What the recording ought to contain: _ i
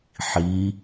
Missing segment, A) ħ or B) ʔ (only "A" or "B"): A